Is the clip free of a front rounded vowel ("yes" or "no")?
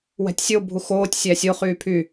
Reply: no